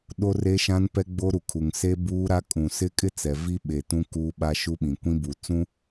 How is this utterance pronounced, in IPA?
ɗ o˦ r e˦ ʃ ã˦ n p ɛ˦ ɡ͡b o˦ ɾ u˨ kʰ u˨ ŋ s e˦ b uː˦ ɾ a˦ kʼ ũ˨ s ɪ˦ kʼ ɪ˦ t͡s ɛ˨ v i˦ ɓ e˨ t ũ˦ k u˦ ɓ a˦ ʃ u˦ ɓ ĩ˨ kʷ ĩ˦ b u˨ t͡s ũ˦

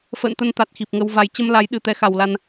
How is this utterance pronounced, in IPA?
f ə̰ː˧˨ n t̪ ə˧ n t̪ a˨˩ t̚ x i˨˩ p̚ ŋ ə˧ w v a˧ j t͡ɕ ə˧ m l a˨˦ j ɗ ɨ˨˩ t̪ ɛ˧ x a˨˩ w l a˧ n

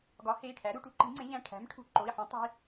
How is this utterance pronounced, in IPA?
ɡ ɒ˩˥ h e˩˧˩ i̯ ʈʰ æ˩˥ ɾ u˩˧˩ ʈ u˩˥ ǃ i̤˩˥ ŋ͡ǀ ẽ˩˥ ʎ æ̃˩˧˩ ʈʰ æ̤˩˥ m ʈʰ ṳ˩˧˩ ǃ o˩˧˩ i̯ ħ ũ˩˥ tˤ i̤˩˧˩

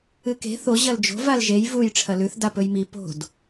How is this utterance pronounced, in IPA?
ɨ k e̤ θ o ʑ ɐ l d͡ʒ o̤ v a l ʒ e j v u j ʈ͡ʂʰ ɐ l ʉ θ d a p ɵ j m i p o̤ d

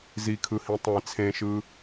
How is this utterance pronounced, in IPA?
z i kʰ ɯ h ĩ tˤ ẽ t͡sʰ ẽ ʃ ɯː

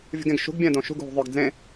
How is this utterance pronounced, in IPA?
vʲ ṳ ɡ ẽ ɡ ʃ ṳ ɡ bʲ ɛ̃ d õ ʃ ṳ ɡ ɦ ṳ ðˤ œ ɡ d͡z ẽ

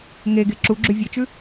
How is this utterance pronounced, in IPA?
ŋ e ɡ e ǁ u ɡ͡ǁ ʉ vʲ e t͡ʃ ʉ

